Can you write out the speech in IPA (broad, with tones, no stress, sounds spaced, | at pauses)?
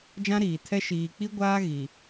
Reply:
d͡ʒ ã˦ ɾ iː˨ tʰ ɛ˦ ʃ iː˨ k͡p i˦ ɡʷ aː˦ ɣ i˨